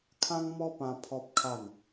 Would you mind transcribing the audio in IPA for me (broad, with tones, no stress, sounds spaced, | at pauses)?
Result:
kʰ ã˦ ŋ m ɔ˦ p ã˧ pʰ ɔ˦ p̚ kʰ a˥˧ n